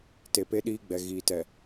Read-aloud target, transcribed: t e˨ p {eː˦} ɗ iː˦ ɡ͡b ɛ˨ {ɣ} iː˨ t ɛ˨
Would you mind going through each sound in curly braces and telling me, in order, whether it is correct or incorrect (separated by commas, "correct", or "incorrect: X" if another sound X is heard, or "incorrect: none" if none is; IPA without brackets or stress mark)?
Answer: incorrect: e˦, correct